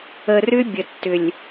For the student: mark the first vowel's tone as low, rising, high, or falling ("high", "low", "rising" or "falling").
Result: low